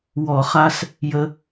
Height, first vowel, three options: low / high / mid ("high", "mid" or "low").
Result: mid